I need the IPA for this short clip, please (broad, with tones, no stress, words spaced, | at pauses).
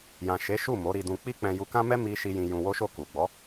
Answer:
jã˨ʃe˨˦ʃu˦˨ mo˨˦ɾi˧dũ˧ k͡pi˦k͡pɛ̃˧ju˧kã˦ mɛ˦mi˧ʃi˧ jĩ˧ jũ˧wo˦ʃo˦˨ ku˨ɡ͡bɔ˨˦